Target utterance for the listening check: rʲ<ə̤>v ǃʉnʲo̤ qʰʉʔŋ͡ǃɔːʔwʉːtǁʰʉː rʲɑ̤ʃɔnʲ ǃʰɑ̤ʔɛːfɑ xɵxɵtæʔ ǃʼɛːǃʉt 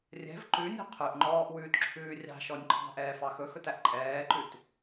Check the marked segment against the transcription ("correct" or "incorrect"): incorrect